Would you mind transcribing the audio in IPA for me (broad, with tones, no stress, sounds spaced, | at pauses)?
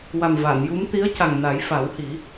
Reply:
w a˨˩ m v a˨˩˨ n j u˧˥ m t̪ i˧˥ ə̯ c a˨˩ ŋ n a˨˩˦ j f a˨˩˦ w h i˨˩˦